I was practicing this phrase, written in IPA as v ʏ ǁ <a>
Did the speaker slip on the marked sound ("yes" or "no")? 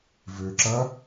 yes